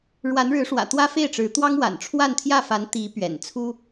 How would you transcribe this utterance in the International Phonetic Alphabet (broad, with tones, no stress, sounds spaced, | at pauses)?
ɻ w a˧˥ n ɻ ɻ̩˧˥ ʂ w ä̰˨˩ t̪ w ä˥ f e˥˩ ɪ̯ ʈ͡ʂ ɻ̩˧˥ t̪ w ɑ˥ ŋ w a̰˨˩ n ʈ͡ʂʰ w a˥˧ n t̪ʰ j ä˥˩ f a˧˥ n t̪ i˧˥ p ɥ ɛ̰˨˩ n t͡sʰ u˥